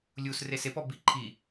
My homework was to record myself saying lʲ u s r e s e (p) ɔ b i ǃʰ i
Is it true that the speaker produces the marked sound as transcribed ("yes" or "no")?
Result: yes